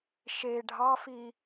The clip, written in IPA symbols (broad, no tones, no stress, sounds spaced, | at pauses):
ʃ e ɖʱ ɑ f i